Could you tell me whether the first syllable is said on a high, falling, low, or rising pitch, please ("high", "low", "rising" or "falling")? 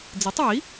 rising